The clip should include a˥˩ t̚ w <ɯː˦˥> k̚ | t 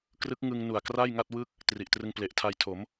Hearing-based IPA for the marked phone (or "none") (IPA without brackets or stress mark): ɯ˦˥